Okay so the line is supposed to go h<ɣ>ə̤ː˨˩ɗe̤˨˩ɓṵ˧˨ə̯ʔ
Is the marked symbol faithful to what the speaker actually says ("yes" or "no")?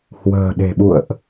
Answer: no